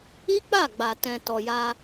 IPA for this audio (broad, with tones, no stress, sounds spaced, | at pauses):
i˦ k͡p a˦˨ ɡ͡b a˨ t ɛ̃˨ t ɔ˨ j a˧